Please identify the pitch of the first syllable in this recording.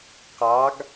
rising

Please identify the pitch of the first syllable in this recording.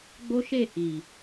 high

